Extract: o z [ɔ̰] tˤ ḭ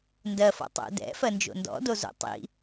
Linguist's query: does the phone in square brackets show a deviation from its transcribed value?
yes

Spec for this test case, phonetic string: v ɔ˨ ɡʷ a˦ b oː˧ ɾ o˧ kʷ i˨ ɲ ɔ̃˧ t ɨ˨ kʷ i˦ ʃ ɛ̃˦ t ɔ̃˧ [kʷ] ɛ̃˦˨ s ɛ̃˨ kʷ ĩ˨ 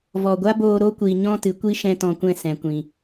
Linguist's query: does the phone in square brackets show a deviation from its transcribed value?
no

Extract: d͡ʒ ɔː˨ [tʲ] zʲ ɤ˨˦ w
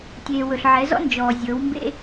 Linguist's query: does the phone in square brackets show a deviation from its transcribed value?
yes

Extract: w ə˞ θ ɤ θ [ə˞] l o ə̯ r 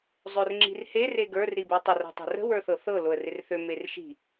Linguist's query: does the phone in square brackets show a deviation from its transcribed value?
yes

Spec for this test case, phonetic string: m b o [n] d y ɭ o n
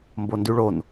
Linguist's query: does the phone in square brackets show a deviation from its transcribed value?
no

